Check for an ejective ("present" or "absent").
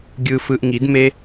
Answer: absent